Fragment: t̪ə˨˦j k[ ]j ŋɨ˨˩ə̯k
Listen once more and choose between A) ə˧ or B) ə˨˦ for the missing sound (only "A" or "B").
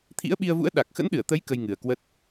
A